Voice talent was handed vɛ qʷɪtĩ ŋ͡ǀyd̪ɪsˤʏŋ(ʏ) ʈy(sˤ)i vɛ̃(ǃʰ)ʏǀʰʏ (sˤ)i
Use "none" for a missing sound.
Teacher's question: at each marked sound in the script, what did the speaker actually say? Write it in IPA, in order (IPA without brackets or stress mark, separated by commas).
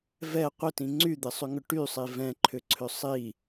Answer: ʏ, sˤ, ǃʰ, sˤ